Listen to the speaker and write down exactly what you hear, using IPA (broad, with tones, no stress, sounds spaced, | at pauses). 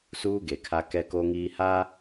s uː˦ ɡ e˨ kʰ a˦ k ɛ˦ k o˦ ŋ iː˦ h a˦